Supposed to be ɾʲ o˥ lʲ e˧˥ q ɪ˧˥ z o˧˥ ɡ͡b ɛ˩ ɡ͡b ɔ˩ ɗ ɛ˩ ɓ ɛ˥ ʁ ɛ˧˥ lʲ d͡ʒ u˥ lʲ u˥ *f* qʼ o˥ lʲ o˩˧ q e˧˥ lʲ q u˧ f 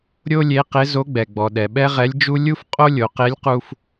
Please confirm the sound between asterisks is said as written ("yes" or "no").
yes